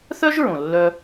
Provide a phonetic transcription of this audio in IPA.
θœ˥ʒɹõ˩ lːœ˧

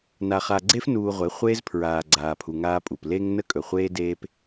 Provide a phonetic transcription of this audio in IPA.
na˨χa˨ɡ͡ǀe˦f nuː˨ ʁʷe˨˦χʷeː˦z pʰɹaː˨ɡ͡ǀaː˨pʰu˨ ŋaː˦pʼu˨p le˦ŋ nə˦kʼɵ˨χʷeː˦ deː˦p

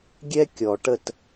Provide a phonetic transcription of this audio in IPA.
ɡʲɛ˦kʲɔ˨ʈə˦˨t

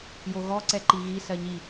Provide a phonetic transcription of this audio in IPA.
joɣɔ ǀɛǃiɣi sɜɲi

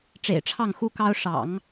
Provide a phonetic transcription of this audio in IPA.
ʈ͡ʂḛ˨˩ɪ̯ʈ͡ʂʰɑ˥˩ŋxu˥kɑ˥ʊ̯ ʂɑ̰˨˩˦ŋ

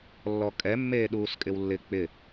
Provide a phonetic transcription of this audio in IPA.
lːɔkʼɛ mːeːɗuːskʼɪwlːɪ k͡pɪ

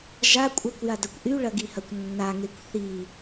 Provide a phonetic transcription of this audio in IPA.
ʒa kʷʼʌkʷjadɐkʷ ʔyɭɐɡihɐkʷ nːaŋekʷ θi

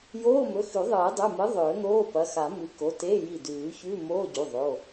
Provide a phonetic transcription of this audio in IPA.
joː˧˥˧mɵ˩˧˩xʉ˨˩˦ ðˤɨː˨˩˦dˤʉ˩˧˩mɨ˨˥ ðˤɵː˨˩˦n̪oː˧˥˧ pɐ˩˧˩ xa˨˩˦ mɨ˨˥ko˩˧˩te˧˥˧ji˧˩ dʉː˨˩˦çʉ˧˥˧ moː˧˥˧ɟu˩˧˩ ðˤo˩˧˩

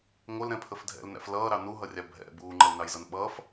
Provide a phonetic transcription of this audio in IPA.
ŋʷəlɾɛ̃pʰəf dʱɛ̰lnæ̰f lʌːɾɑ nuɦʌrʲɑ bʱɛ̰ buːŋ͡ǃʌlnɑjzʌn ɓʌːf

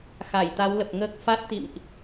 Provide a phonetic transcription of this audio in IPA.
xa˧˩jt̪a˨˦wlə˨˩p̚ŋəː˦˥k̚ fa˦˥t̚ t̪ḭ˧˨mʔ

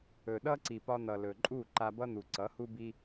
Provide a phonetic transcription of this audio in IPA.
ɵ˨ɗʌ˦ ǀi˨pɒ˧n̪ʌ˨lɵ˨ ǃʼu˦˨ ǃa˧bʌ˦n̪u˨ ǀʌ˨˦hu˦bi˦

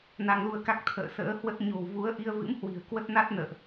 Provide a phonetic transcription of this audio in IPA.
na˧ŋlu˧ə̯ka˦˥k̚ t̪ʰə̰ː˧˨sə̰ː˧˥hwə˦˥t̚ ɲo̤˨˩wvu˨˦ə̯ ʔi˧ə̯vɨ̰˧˥mhwi̤˨˩ə̯ kwə˦˥t̚na˦˥t̚nə̰ː˧˨ʔ

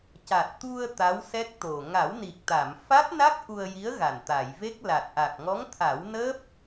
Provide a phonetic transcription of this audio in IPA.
ca˨˩t̚ t̪u˧ə̯ t̪a˧˥wsɛ˦˥k̚t̪o˨˩ ŋa˨˩˦wni˨˩k̚t̪a˨˩˨m fa˦˥t̚na˦˥k̚ ʔu˧ə̯ji˧˥ə̯ɣa˨˩n t̪a˨˩˨jve˦˥k̚la˨˩t̚ ʔa˨˩k̚ŋɔ˧˥ŋt̪ʰa˨˩˦wnəː˦˥p̚

